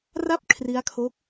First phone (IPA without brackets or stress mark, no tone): r